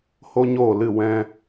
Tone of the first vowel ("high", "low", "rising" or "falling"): high